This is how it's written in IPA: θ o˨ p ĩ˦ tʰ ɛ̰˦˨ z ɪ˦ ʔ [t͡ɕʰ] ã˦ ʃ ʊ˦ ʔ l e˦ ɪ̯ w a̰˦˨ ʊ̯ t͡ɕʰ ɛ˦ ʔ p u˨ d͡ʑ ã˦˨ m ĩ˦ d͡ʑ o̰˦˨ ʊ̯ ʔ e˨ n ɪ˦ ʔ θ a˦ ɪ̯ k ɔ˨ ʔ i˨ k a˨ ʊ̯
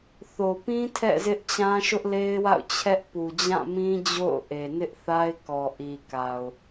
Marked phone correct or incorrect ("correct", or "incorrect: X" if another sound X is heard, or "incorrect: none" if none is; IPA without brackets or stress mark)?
incorrect: t͡ɕ